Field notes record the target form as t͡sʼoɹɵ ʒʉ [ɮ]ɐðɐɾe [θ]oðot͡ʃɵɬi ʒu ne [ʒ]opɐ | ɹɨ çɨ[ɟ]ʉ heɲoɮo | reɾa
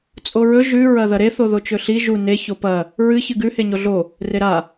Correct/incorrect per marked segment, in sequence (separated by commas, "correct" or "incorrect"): incorrect, correct, incorrect, incorrect